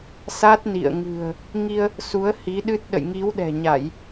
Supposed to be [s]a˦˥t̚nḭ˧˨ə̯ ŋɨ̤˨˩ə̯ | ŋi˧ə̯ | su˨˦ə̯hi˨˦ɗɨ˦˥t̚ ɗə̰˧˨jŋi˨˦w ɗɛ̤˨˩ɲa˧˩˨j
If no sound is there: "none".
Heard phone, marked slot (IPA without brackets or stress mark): s